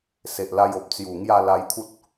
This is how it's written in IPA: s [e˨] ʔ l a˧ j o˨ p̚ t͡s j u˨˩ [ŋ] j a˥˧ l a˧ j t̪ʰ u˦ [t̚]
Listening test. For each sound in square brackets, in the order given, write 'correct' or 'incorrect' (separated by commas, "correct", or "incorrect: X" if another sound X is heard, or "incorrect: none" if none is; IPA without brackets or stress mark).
correct, correct, correct